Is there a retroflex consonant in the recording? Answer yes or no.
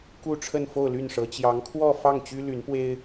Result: yes